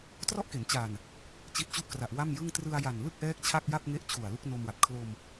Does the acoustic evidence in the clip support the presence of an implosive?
no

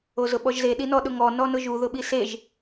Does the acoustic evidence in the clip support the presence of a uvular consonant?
no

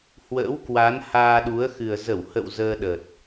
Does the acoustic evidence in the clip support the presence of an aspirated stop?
no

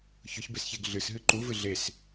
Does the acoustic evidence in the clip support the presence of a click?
yes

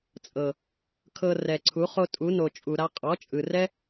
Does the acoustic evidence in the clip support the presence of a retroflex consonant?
no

